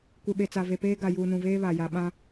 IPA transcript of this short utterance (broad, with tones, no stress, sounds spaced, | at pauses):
kʷ e˨ ɓ e˨ t͡s a˨ v e˨ p eː˦ ɡ a˨ j uː˨ n ũ˨ v eː˦ β a˨ j a˨ ɓ ã˦